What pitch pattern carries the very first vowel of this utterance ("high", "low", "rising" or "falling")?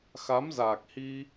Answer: rising